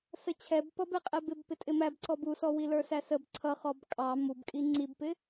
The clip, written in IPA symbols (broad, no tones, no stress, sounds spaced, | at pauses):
s ə t͡ɕʰ ɛ b p ʌ b ɛ qʼ ɛ b ɪ b p ɪ tʼ ɪ m æ b ǀ ɔ b u s ɔ w i l ə˞ s æ s ə b ǀʰ ʌ χ ɔ b kʼ ɑ m u b kʼ i ŋ͡ǀ i b p ɪ